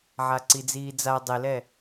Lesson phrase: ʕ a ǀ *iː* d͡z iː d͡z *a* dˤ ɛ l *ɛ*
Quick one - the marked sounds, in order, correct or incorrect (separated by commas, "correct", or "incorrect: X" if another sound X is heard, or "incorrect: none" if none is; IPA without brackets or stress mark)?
incorrect: i, correct, correct